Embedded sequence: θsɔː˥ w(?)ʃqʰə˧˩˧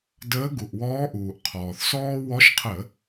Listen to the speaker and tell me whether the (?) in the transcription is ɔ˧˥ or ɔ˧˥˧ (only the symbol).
ɔ˧˥